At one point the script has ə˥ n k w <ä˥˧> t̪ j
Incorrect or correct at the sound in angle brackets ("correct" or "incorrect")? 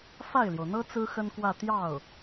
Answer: correct